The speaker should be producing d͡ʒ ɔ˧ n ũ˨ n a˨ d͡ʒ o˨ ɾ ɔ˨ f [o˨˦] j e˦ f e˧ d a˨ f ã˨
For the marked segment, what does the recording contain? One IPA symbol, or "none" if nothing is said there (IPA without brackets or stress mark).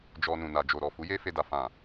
u˨˦